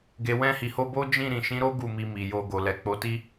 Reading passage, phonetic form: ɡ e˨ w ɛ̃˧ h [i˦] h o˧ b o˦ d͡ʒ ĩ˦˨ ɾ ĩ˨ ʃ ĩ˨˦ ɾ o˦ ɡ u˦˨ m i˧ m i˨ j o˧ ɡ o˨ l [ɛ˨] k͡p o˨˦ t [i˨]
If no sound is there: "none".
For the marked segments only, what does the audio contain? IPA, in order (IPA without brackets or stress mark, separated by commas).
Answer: i˨, ɛ˨, i˦